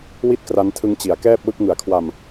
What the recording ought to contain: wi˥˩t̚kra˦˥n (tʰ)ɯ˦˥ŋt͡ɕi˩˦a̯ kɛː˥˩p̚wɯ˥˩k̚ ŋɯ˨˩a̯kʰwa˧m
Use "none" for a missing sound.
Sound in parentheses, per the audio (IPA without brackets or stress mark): tʰ